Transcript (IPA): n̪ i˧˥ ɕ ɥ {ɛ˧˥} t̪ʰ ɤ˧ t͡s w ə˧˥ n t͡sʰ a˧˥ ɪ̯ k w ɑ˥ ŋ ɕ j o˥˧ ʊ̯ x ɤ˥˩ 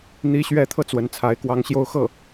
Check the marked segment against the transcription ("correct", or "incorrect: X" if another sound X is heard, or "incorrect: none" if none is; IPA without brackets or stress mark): correct